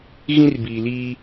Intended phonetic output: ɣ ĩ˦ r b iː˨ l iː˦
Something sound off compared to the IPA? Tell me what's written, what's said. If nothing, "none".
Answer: none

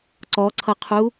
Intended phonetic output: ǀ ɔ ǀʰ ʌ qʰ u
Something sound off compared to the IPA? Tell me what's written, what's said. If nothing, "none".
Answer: none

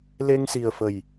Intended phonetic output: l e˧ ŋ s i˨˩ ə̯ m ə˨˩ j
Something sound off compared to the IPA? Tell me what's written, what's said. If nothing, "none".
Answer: m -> f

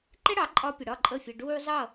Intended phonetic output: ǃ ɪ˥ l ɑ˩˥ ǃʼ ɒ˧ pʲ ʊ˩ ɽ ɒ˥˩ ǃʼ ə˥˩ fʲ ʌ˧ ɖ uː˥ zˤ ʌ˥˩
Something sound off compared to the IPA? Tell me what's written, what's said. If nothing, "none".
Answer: l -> ɽ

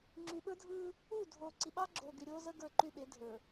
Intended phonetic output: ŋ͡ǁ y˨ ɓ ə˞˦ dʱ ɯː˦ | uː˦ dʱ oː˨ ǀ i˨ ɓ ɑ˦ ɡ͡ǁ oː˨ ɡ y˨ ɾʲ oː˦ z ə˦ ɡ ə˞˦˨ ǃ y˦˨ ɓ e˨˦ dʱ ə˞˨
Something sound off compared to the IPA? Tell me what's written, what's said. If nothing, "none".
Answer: uː˦ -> uː˦˨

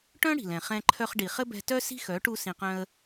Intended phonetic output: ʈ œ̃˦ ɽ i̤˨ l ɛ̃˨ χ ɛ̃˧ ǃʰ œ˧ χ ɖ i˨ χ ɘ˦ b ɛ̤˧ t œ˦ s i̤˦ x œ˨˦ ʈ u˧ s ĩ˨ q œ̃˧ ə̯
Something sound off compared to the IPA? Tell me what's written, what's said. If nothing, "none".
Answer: none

